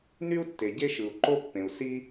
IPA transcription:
ny˥u̯tːe˩ ɟe˥ʃɯ˩u̯ǃo˥pːẽ˩u̯ si˥

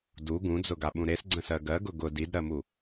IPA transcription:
du ɡũd͡zʊɡaɓũ ɾesɡ͡ǀə̃sɜ ɡɜɡʊ ɡʊ didɾɜmu

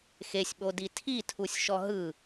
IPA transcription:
xesʲɓodi tʰitʰusʲʃɔ ɦɯ

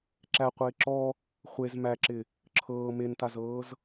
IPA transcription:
ǁæqʷɪː ǁɔ | χʷez mæǁɪ | ǁʰɤː mentazɤːz

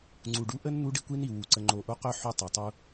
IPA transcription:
ŋ͡ǀu˨ɖ u˦ʔə˦n n̪u˦ɖi˦kʷi˦ni˨ wu˨ ǀə˨ŋ͡ǃo˨ʔo˦qœ˦ ħu˦tˤo˨tˤu˦

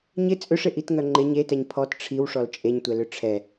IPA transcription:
ɲɪ t͡sʼʏʂɪʔitŋœ ŋ͡ǃɪɲ etɛɲ pʰɔt ʈ͡ʂʰiwʂɔl t͡ʃʼeɲtʷɛlʏ ʈ͡ʂʰɛ

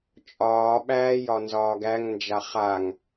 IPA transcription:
t͡ʃʼɒːɓæː jɒnzɒːɡæŋnd͡ʒa χaŋ

